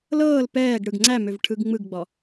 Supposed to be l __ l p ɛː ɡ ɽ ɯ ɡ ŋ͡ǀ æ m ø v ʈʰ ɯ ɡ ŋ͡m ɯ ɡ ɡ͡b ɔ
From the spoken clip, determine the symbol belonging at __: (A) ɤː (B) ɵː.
A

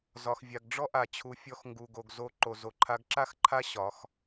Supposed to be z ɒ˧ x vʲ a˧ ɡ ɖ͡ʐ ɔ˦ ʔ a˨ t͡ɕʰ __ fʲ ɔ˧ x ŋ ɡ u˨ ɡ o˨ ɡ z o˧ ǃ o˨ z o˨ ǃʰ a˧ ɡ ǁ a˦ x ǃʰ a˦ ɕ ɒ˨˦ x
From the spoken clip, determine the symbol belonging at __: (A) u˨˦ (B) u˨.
A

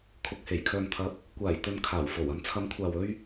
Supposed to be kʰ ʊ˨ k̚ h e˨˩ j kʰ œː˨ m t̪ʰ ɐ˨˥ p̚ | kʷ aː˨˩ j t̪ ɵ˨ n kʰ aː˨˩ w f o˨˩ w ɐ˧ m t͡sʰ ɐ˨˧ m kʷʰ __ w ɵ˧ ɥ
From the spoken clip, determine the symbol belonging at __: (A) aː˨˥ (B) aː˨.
B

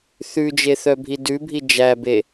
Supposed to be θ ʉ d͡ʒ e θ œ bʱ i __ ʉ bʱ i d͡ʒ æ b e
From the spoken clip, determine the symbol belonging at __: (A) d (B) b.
A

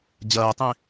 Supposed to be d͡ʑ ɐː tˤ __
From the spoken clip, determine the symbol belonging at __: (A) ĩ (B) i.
A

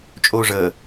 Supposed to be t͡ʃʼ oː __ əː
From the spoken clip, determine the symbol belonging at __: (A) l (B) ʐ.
B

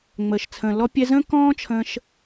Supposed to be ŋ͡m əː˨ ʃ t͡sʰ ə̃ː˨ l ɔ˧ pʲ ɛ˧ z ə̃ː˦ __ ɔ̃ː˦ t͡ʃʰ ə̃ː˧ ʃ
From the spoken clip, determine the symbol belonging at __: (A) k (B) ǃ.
A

